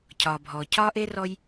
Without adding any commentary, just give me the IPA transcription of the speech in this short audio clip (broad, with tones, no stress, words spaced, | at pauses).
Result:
cʰɒː˩bʱɔː˩ cʰɒː˦ ʔeː˥rɔ˦j